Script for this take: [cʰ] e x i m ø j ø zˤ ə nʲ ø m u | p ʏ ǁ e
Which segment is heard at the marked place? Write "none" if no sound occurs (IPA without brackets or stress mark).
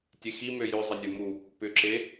tʲ